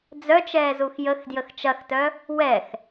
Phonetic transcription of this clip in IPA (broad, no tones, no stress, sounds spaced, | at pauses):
d͡z œ t͡ʃ ɛː z u x j ə x d j ə x t͡ʃ ɐ x t œ | w ɛ x